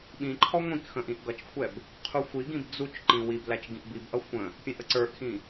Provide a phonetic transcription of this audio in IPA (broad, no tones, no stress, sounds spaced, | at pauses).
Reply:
ɓ ĩ ǃʰ ɔ ŋʷ ĩ k x ə̃ ʔ ĩ ʔ ɡ ʌ t͡ʃ kʷʰ ɛ b | qʰ u xʷ i ɡ ĩ b d͡z u t͡ʃ ǃ ĩ w i b l æ t͡ʃ ɡ ĩ ʔ b i b ʔ ʌ xʷ ə̃ | pʲ ɛ̃ ʔ ə ǀ ə˞ ʔ x ĩ